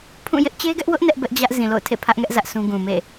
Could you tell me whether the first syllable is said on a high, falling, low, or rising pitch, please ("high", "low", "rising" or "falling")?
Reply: falling